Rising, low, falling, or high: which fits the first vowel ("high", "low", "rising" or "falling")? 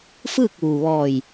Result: falling